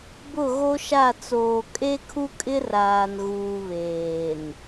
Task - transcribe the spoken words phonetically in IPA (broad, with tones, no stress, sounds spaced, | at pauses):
b ʊ˦˨ ɣ o˦ ʃ a˦˨ t͡s oː˨ kʼ e˦ kʰ u˦ kʼ ɪ˦ r aː˨ n ɣ uː˨ β eː˨ n